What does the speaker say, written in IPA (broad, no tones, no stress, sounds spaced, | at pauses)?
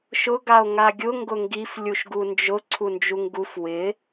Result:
ʃ ʊ ɡ a o̯ ŋ a ɡʲ ʊ ŋ ɡ ʊ ŋ ɡ i f lʲ u ʃ ɡ u n d͡ʒ ʊ ǀʰ u n d͡ʒ u ŋ ɡ u f w ɪ